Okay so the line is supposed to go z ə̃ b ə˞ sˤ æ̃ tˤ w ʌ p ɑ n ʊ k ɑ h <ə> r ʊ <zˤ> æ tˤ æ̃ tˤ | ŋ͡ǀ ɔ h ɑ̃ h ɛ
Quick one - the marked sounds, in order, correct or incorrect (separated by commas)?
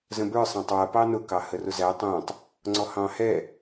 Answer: correct, incorrect